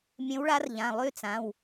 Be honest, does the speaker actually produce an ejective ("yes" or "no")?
no